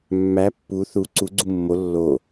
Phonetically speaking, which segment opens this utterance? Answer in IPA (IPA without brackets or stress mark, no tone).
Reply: mː